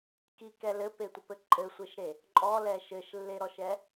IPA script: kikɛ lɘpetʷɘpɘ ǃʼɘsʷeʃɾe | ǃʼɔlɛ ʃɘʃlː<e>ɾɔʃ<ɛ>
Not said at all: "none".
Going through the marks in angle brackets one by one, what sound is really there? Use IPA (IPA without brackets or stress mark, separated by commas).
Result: e, ɛ